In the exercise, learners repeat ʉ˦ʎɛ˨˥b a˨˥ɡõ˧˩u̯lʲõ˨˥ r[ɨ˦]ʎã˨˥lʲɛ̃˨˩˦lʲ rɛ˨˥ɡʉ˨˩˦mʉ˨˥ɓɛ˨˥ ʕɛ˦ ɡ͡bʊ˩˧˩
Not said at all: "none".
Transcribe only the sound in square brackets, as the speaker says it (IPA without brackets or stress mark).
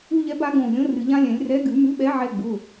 ɨ˨˩˦